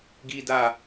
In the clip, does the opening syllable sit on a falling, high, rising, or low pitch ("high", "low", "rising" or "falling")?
high